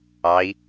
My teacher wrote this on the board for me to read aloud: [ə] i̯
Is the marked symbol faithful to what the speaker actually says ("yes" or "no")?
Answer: no